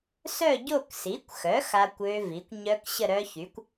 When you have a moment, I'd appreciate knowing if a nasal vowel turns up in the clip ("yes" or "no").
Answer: no